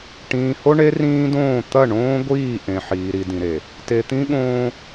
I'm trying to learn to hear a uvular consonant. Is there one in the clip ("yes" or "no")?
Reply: no